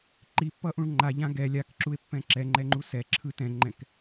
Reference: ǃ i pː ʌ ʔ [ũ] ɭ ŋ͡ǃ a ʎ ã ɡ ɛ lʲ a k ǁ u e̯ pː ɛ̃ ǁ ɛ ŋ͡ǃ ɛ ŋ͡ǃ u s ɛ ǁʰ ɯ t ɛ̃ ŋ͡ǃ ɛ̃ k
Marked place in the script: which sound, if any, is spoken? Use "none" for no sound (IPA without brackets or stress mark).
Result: ũ